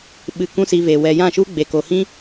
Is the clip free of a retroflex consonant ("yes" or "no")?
yes